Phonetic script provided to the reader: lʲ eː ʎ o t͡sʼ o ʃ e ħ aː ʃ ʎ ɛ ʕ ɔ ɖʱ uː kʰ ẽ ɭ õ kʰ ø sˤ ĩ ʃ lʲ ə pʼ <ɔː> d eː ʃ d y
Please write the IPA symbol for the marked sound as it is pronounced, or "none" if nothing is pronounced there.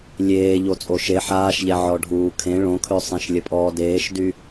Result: ɔː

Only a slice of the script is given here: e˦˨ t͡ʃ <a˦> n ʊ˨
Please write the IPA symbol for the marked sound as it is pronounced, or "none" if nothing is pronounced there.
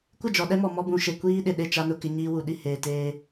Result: a˦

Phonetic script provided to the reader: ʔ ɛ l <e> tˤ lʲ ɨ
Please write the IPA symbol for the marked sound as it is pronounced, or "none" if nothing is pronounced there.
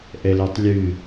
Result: e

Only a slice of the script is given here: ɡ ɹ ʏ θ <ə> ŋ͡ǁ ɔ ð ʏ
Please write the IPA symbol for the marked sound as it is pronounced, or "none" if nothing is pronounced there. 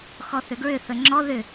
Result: ə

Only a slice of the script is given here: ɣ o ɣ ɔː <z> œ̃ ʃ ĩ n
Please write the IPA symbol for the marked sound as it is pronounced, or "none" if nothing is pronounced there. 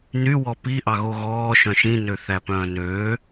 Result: ʃ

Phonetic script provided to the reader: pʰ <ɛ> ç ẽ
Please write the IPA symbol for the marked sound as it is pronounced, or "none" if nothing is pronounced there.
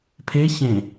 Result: e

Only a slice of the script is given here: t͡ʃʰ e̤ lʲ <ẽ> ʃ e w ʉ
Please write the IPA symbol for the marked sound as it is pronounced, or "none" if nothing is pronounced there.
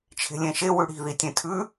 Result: ẽ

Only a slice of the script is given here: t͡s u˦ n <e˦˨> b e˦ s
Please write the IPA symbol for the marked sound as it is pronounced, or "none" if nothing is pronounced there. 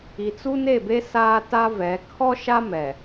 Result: e˦˨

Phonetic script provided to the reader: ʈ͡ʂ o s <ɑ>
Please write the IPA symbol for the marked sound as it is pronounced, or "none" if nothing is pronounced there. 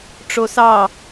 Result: ɑ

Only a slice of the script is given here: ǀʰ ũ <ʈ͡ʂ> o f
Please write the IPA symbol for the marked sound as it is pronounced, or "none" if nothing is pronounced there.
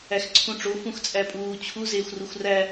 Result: ʈ͡ʂ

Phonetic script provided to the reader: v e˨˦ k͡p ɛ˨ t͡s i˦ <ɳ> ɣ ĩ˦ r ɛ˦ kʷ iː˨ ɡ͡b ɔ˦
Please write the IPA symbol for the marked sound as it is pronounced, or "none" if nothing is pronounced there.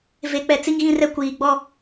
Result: ŋ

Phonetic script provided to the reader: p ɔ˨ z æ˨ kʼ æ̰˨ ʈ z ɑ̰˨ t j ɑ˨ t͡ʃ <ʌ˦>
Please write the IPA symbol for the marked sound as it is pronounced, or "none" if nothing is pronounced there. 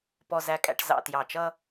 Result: ʌ˦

